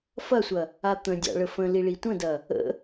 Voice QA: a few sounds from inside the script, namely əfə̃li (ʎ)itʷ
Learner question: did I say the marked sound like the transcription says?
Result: no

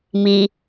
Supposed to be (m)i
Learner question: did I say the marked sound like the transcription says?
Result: yes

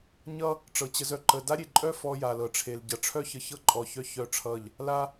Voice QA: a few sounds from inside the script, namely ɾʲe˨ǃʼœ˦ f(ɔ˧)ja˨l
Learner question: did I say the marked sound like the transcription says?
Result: yes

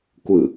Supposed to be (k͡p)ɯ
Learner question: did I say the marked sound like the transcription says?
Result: no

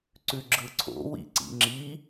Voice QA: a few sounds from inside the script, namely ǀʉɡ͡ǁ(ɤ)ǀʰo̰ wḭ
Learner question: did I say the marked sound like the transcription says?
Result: no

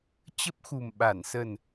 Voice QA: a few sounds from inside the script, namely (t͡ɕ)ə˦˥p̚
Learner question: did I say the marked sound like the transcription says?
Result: yes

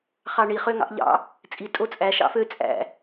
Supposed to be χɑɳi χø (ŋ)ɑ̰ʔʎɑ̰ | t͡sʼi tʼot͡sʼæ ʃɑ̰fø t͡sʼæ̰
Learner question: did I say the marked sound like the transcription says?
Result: yes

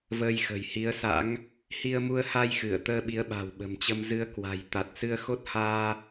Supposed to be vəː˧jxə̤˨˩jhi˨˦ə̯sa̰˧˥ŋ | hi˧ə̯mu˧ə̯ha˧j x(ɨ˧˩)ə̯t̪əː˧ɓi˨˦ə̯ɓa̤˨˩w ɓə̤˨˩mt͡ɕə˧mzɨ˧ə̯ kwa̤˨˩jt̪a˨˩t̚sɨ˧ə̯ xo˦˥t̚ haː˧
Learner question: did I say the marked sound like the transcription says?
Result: yes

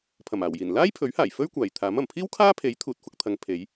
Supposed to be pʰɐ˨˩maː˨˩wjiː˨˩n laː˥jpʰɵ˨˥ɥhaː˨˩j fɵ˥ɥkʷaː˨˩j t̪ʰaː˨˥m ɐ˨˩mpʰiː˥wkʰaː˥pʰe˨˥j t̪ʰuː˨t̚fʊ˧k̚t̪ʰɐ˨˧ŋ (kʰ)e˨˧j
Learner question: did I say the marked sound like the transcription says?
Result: no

